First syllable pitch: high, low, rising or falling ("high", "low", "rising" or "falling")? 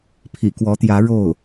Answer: low